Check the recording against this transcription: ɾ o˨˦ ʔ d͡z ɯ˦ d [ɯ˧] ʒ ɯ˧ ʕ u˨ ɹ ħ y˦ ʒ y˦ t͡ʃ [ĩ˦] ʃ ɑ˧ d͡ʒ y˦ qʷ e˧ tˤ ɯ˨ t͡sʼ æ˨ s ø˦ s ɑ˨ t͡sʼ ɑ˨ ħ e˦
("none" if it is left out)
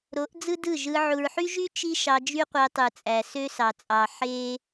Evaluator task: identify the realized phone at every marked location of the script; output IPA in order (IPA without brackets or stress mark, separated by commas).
ɯ˦˨, i˦